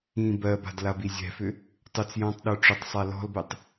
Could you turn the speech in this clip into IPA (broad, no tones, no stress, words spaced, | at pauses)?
ĩ bɜba̤d labizʲɛ̤fʏ | tˤʏt͡s jɔ̃tˤɗə˞ ʈ͡ʂʏtˤsˤa lɔ̤lbɛtˤ